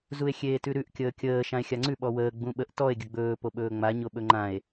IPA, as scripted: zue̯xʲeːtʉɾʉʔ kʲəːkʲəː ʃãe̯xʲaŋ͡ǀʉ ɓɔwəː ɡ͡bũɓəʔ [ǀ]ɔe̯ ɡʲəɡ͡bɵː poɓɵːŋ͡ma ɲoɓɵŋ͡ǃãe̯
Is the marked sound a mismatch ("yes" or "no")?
yes